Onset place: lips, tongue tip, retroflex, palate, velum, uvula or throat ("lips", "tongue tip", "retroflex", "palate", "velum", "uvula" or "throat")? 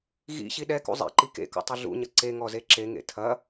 velum